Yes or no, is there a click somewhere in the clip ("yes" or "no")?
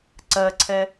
yes